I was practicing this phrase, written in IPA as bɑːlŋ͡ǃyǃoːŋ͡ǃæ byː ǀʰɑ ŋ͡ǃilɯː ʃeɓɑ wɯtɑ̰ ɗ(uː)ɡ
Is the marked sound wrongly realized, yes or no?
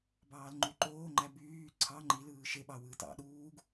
no